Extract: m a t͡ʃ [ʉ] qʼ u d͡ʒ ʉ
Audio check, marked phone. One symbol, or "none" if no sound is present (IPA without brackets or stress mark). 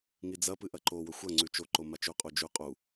ʉ